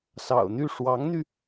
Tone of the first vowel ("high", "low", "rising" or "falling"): low